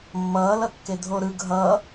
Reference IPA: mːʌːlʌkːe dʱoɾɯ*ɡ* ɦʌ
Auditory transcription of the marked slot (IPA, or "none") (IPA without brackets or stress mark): ɡ